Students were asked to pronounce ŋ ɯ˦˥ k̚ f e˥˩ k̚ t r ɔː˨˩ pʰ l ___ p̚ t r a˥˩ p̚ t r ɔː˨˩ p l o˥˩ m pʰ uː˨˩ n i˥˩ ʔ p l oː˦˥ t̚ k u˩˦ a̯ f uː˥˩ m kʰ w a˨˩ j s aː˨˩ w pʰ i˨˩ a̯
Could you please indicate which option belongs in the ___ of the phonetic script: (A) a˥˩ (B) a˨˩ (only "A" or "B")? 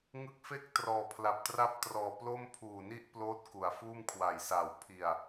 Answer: B